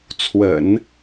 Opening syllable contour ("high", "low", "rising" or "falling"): low